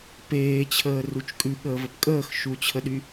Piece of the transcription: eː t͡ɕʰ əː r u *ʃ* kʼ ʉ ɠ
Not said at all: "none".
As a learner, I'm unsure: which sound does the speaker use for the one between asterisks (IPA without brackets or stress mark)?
t͡ʃ